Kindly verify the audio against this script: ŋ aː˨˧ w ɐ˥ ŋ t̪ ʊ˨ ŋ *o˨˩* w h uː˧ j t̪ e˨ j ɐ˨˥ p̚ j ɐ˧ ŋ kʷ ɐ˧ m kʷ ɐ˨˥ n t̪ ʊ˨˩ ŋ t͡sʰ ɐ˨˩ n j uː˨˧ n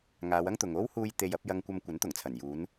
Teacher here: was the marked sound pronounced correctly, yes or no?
no